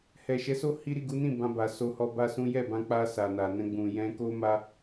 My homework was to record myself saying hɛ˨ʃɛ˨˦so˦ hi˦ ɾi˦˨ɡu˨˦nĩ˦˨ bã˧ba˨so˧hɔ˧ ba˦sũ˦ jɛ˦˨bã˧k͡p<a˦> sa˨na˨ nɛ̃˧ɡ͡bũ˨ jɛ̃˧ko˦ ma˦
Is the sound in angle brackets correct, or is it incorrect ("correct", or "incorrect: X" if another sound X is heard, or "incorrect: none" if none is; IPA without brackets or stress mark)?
incorrect: a˧